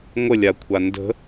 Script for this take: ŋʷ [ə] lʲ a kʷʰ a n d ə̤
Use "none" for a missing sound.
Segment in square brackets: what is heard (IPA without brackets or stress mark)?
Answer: ə